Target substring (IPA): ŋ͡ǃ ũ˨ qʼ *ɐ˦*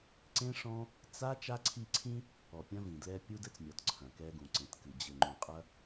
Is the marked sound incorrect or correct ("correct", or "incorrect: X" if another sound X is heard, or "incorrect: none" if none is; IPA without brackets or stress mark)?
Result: correct